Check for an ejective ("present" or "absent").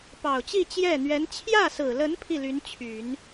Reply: absent